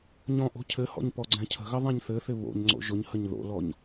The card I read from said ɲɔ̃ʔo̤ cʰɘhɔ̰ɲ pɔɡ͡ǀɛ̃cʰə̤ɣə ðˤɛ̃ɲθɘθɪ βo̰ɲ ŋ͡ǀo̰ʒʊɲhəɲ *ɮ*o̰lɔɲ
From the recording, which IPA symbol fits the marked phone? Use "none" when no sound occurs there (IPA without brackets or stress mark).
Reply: ð